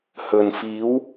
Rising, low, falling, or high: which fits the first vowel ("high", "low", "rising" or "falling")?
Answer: low